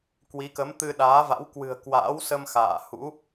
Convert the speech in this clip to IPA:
k w i˨˦ k ə˨˦ m t̪ ɨ˧ ɗ aː˨˦ v a̰˧˥ w k w ɨ̤˨˩ ə̯ k w a̰ː˧˥ w s ə˧ m x a̰ː˧˨ h ṵ˧˥

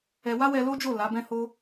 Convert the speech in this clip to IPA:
ɛ˧ w a˦ w ɛ˧ l o˦ d͡ʒ o˦˨ l a˨˦ b ɛ̃˦ h o˦

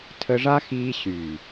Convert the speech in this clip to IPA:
tʰ ə˧ ʐ a˦ x iː˧ ɕ y˨

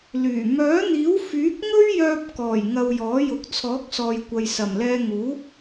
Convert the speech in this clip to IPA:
l yː˨˩ m œː˨˥ n̪ iː˨˥ w f yː˨˥ k̚ ŋ ɵ˥ ɥ j œː˧ p̚ k ɔː˨˩ j ŋ ɐ˧ w j ɔː˨˥ j ʊ˨˥ k̚ t͡sʰ ɔː˨˥ k̚ s ɔː˨ j kʷ ɐ˨ j s ɐ˨˩ m l ɛː˧ ŋ uː˨˥

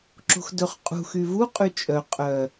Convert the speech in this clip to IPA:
ǁ o̤ x d ɵ χ qʼ ṳ x y v u qʼ y t͡ʃʼ œ qʼ œ

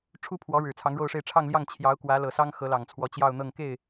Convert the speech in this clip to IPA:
ʈ͡ʂʰ u˥ pʰ w ɔ˧˥ ɻ ɻ̩˨˩ t͡sʰ ɑ˧˥ ŋ ɻ o˥˧ ʊ̯ ʂ e˥˧ ɪ̯ ʈ͡ʂʰ ɑ˥˧ ŋ l j ɑ˥˩ ŋ t͡ɕʰ j ɑ˧˥ ʊ̯ k w ä˧˥ l ɤ˨˩ s ɑ˥ ŋ x ɤ˧˥ l ɑ˨˩ ŋ t͡sʰ w ɔ˧˥ t͡ɕ j ɑ˥˧ ʊ̯ n̪ ɤ˥˧ ŋ k e˥˩ ɪ̯

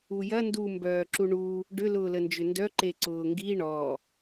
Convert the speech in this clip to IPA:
u j ɐ n d u m b œː ǁ u ɳ u | ɖ ʏ l ʊː l ə n d͡ʒ ʏ n d œ ǃ e ǀ ʊː ŋ ɡ i ɳ ɔ

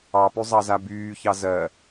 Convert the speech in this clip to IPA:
ɑ p y zˤ ɑ z a b yː ç ɑ z ɜ

